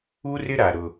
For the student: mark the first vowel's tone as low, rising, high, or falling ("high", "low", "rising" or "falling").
high